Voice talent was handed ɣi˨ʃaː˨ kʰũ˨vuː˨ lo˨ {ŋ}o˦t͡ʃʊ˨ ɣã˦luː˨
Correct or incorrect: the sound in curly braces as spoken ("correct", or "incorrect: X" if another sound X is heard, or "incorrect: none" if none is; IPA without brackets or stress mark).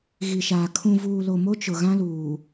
incorrect: m